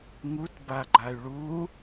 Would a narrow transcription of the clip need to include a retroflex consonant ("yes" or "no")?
yes